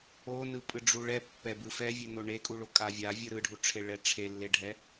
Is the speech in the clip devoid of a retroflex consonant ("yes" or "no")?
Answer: no